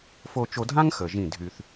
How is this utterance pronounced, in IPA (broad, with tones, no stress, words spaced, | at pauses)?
fo˧t͡ʃo˧dʱã˦ŋ xə˨ʒĩ˦˨ dʱy˧θ